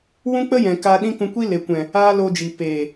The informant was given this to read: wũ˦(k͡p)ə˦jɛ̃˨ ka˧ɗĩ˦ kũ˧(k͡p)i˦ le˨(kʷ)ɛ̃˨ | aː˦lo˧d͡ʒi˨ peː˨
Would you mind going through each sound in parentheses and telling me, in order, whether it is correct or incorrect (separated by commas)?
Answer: correct, incorrect, correct